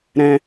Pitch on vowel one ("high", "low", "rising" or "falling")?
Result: high